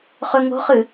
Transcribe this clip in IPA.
χ ɵ ŋ o̤ χ ɨ

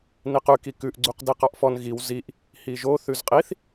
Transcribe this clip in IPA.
n i q ʉ k i k ʉ ʔ ɡ͡ǀ u q d i q ɑ ʔ f ɔ n ɣ i w z i ʔ | h i ʒ o θ ʉ z qʼ i θ

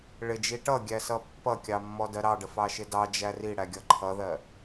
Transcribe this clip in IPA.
ɭ ɪ d͡ʒ i ʈ ʌ ɡʲ æ s ʌ pː ʌ kʲ ɑ mː ɔ d ɜ ɾ ɑ ɖ ə f ɑ ʃ ɪ d ɑ d͡ʒ æ r i ɽ æ ɡʲ ʌ ǃʰ ʌ ð ɜ

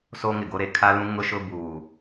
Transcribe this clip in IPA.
s o˦ ŋ ɪ˨ ɡ o˦ ɾ e˨ kʰ a˦ l ũ˦ ŋ ʊ˦ ʃ ʊ˦ b uː˨

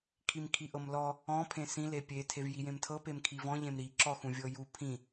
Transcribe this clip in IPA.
kʰ i m kʰ i ʔ ɤ m l ɔ | ɔ̃ pʰ ẽ s ĩ l e pʲ e tʰ e v j i j ẽ m tʰ ɤ p e m kʰ i v ɔ̃ ʎ ẽ m ɾ i ǁ ɔ x ũ vʲ ɤ j u pʰ ĩ

